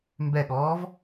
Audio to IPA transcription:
mbɛɠɔːv

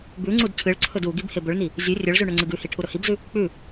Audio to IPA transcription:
bʉŋ͡ǀud cʰɨɭǀʰɵd u ɡibhebɵɭni | zʲɵ rʲɵɭzʉ ɳɵŋ͡ǀɨɡʉhi ʈʰuɾɵhibzʉ | k͡pʉ

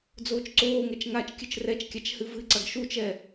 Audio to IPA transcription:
d͡zoːt͡ʃǀoːŋɛt͡ʃ ŋat͡ʃkʲɨt͡ʃ rɛt͡ʃkʲat͡ʃ hɨvɨǀɐɡ ʃut͡ʃɛ

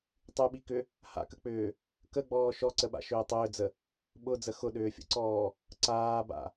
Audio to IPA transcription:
tˤyɓikʏ | ha̰kək͡pʏː | kəɡ͡bɔː ʃɔǀəɓa̰ʃʏː tˤʏːd͡zə | ɓʊd͡zə xʊɗʏːfʲə̰ǀɔː | ǀaːba̰

